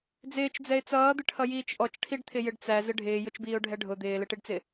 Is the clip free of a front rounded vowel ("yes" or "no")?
yes